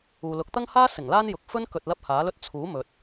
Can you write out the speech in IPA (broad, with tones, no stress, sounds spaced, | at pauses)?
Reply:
uː˨ l ʊ˨˥ k̚ t̪ ɐ˥ ŋ h aː˥ s ɪ˨˩ ŋ l aː˥ n j ʊ˨ k̚ f ɵ˥ n k ɵ˧ t̚ l ɐ˥ p̚ h aː˨˥ l ɵ˥ t̚ t͡sʰ uː˨˥ m ɵ˨ t̚